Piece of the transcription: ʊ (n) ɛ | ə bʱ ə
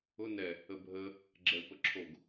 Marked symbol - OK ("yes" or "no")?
yes